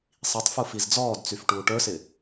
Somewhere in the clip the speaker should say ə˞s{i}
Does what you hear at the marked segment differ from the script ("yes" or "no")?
yes